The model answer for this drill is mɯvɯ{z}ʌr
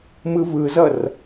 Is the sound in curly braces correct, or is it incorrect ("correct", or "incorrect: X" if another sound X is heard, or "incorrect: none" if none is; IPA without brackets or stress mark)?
correct